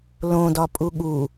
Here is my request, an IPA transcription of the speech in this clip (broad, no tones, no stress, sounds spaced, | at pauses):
l õ d ɒ pʼ u ɠ u